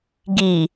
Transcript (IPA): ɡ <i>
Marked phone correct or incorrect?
correct